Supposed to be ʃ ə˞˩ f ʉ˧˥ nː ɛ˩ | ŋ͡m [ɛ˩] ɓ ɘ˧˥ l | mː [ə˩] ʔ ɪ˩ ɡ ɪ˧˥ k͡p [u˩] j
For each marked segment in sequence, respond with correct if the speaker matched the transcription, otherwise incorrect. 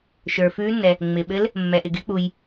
incorrect: ɪ˩, incorrect: ɛ˩, correct

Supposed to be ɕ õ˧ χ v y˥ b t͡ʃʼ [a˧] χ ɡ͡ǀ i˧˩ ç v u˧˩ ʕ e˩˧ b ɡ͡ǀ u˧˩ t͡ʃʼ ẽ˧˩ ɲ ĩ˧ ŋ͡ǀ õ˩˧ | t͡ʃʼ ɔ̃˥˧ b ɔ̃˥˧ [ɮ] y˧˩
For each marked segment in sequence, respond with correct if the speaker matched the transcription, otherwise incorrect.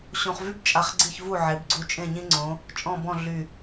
correct, correct

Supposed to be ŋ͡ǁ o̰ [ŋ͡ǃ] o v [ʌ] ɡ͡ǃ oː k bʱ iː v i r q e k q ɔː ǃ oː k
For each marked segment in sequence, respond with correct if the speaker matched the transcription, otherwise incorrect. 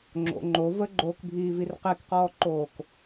correct, incorrect: ə

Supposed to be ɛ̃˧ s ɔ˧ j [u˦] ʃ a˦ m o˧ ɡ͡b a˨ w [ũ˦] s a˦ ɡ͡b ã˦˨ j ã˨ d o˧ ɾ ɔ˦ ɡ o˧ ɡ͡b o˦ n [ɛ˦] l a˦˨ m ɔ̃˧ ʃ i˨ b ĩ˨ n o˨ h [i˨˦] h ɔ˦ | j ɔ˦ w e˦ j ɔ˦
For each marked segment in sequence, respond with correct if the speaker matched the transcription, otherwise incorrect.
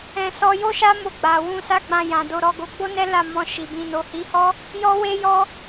incorrect: o˦, incorrect: ũ˧, correct, correct

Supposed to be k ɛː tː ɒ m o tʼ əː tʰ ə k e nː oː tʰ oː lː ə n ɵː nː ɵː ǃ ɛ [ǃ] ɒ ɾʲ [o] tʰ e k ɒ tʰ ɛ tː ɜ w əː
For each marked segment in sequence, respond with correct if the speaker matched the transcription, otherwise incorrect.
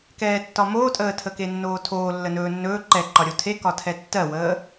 correct, correct

